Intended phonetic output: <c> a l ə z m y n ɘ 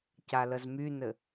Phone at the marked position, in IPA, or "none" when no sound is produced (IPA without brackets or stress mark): c